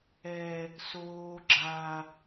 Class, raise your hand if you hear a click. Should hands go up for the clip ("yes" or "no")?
yes